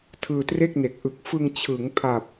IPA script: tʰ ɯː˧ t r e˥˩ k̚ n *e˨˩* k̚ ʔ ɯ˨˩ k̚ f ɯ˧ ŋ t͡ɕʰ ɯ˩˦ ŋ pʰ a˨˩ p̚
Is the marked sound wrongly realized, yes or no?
no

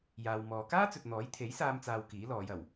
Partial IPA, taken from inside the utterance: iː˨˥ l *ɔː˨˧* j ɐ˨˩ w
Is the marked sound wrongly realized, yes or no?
no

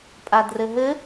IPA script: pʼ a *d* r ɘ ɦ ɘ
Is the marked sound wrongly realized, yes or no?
no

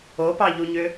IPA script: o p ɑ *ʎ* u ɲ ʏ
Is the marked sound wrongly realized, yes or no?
no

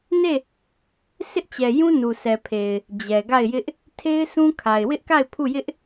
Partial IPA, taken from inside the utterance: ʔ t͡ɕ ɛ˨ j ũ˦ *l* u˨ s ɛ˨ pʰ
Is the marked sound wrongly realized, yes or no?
yes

